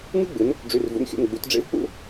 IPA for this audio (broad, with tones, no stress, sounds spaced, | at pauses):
ŋ ɯ˥ ɡ͡b ɯ˨˦ n | ɖ͡ʐ ʉ˧˥˧ r v ṵ˧˥˧ n xʲ ṵ˧˥˧ n ɡ͡b u˨˦ t ɖ͡ʐ ḛ˥ v k͡p ṵ˥